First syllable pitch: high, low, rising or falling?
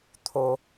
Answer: low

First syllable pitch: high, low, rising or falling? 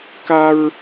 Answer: high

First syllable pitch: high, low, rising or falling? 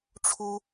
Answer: high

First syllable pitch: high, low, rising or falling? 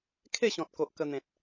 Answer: falling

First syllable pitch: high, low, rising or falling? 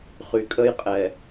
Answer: low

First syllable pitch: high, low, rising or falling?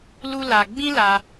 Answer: high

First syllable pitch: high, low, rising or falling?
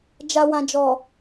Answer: low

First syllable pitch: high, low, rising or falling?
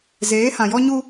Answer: rising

